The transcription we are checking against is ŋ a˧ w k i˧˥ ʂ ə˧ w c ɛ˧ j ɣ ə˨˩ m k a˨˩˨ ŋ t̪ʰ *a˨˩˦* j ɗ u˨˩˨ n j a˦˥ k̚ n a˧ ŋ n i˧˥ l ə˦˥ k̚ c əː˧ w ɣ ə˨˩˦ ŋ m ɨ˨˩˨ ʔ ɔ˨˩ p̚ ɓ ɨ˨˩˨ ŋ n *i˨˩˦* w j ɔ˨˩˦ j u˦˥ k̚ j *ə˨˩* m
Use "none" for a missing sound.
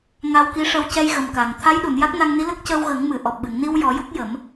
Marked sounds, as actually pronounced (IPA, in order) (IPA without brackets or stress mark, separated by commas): a˧˥, i˧, ə˨˩˦